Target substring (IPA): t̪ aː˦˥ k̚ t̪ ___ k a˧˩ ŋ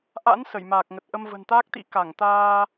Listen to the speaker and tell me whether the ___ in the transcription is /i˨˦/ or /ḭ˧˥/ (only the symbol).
ḭ˧˥